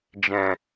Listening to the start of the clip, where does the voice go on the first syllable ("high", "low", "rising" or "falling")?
low